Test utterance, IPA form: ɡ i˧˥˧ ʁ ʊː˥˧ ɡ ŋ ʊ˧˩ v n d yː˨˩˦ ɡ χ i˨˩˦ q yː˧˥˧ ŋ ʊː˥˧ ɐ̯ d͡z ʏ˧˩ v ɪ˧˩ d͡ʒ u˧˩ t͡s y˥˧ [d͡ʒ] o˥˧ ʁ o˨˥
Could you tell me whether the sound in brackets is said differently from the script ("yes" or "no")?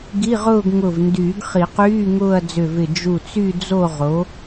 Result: yes